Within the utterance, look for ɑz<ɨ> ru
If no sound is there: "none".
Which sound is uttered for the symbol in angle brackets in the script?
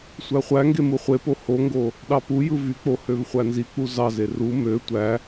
e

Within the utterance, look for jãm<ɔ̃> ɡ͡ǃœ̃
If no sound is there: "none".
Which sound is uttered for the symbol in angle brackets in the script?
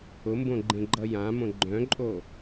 õ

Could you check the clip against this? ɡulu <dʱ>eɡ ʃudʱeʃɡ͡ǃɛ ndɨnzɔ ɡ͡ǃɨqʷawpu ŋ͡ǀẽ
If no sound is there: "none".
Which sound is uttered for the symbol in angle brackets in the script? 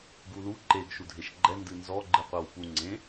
ǃ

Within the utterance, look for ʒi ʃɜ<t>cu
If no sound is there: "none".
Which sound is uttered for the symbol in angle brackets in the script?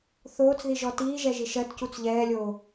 t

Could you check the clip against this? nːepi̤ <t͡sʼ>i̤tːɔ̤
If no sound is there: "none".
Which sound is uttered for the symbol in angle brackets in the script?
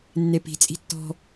t͡sʼ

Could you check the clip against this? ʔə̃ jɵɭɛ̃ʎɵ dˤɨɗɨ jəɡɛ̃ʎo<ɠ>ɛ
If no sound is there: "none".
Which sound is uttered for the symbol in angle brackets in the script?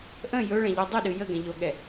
ɠ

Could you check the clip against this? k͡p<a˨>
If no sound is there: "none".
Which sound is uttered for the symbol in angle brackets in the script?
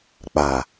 a˨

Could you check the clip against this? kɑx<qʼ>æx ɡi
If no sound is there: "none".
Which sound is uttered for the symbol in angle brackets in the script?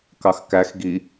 k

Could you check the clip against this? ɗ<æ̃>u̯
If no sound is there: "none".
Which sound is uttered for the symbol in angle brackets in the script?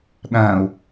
æ̃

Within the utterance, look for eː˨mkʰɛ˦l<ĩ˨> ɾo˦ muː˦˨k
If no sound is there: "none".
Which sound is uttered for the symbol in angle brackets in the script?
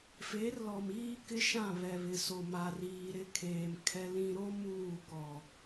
ĩ˦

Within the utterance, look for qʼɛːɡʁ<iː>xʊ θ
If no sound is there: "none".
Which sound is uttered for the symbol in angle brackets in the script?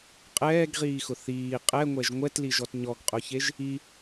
iː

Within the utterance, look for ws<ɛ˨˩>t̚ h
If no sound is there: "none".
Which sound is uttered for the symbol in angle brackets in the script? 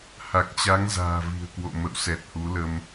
ɛ˨˩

